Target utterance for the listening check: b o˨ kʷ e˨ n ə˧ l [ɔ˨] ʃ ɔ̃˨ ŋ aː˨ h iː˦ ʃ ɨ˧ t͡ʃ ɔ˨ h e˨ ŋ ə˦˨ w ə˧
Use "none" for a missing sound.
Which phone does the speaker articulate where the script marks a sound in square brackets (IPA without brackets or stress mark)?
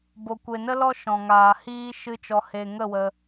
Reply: ɔ˦